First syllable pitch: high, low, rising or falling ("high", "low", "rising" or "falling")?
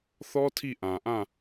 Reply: high